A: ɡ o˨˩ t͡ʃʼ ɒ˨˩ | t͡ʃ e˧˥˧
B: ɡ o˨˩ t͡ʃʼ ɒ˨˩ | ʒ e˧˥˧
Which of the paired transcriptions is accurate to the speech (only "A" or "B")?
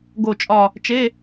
A